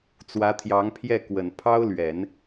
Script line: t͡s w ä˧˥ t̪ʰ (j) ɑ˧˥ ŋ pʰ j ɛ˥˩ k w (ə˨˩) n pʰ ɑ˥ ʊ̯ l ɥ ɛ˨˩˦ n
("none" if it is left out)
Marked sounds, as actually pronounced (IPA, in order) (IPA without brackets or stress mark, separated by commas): j, ə˨˩